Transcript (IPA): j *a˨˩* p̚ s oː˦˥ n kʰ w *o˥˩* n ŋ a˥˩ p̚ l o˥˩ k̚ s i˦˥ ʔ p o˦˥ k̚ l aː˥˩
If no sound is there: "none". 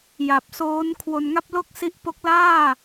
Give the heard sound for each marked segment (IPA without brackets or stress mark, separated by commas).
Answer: a˨˩, o˧